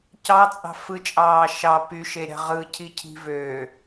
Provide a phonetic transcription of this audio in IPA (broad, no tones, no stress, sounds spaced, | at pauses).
c ɑ t͡sʼ ɑ̤ f ɯ t͡ʃʼ ɑː ʃ ɑ p y ʃ e ɾʲ ɑ̤ ʁ ɯ cʰ i cʰ i̤ v øː